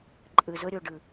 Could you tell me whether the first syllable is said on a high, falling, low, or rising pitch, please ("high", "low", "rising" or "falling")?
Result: low